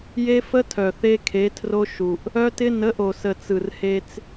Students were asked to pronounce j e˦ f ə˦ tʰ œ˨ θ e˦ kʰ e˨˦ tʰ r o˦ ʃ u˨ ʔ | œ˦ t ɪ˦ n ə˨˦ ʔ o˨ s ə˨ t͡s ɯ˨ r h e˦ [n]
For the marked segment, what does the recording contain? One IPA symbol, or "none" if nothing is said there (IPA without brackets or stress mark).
t͡s